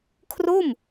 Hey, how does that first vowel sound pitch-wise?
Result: falling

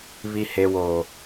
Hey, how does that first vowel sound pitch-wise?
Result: low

